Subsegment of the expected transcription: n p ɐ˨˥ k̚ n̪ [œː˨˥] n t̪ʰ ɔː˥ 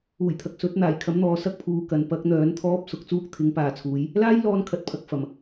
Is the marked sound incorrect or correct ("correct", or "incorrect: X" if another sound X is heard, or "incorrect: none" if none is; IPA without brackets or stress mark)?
correct